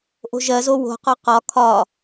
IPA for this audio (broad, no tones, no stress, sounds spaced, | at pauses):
ʔ o̤ ʒ ɜ z o w o̤ q ɒ q ɒ kʰ ɒ